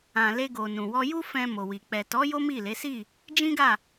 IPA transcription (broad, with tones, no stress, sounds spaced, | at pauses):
ã˨ l e˧ ɡ o˨ n ũ˨ w ɔ˧ j u˦ f ɛ̃˧ m o˨ w i˨ k͡p ɛ˨ t ɔ˨˦ j o˦ m i˦˨ l e˨˦ s i˦˨ | d͡ʒ ĩ˦ ɡ a˦˨